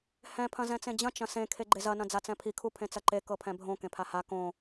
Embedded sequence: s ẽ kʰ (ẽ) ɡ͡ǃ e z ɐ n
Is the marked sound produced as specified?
no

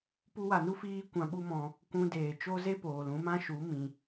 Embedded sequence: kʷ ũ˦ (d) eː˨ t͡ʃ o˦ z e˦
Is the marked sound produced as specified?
yes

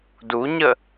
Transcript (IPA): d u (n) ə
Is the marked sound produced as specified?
no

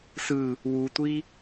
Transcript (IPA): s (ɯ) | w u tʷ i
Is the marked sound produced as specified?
yes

